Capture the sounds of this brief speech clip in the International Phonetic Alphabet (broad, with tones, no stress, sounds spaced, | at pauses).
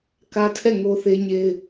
k ä˦ tʰ ɛ˦˨ ŋ o˦ θ e˦ ɲ e˦ ɪ̯